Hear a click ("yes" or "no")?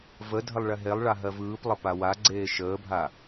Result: yes